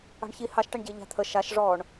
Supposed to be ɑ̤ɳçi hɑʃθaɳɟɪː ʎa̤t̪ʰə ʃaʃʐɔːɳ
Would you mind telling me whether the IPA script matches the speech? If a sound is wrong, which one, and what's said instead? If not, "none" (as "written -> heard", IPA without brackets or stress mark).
θ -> ʈ